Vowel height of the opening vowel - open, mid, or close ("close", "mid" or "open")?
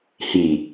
close